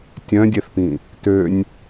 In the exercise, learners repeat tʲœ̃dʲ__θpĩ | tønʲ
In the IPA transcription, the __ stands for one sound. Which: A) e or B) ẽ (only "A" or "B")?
A